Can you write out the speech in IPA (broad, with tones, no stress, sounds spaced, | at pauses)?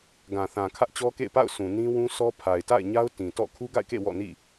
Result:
ɡ ã˨ θ ã˨ kʰ ä˦ ʔ t͡ɕ ɔ˦ k ḛ˦˨ ɪ̯ p a̰˦˨ ʊ̯ sʰ ũ˨ n ĩ˦ w ũ˦ s ɔ˦ pʰ a˨ ɪ̯ t a̰˦˨ ɪ̯ ɲ a˦ ʊ̯ t ĩ˨ t ɔ̰˦˨ kʰ u˦ ɡ a̰˦˨ ɪ̯ k ḛ˦˨ w ɔ̰˦˨ n ḭ˦˨